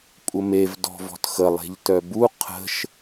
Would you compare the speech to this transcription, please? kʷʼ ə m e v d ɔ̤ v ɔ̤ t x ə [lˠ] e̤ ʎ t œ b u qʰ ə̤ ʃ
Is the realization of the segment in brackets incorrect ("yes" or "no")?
no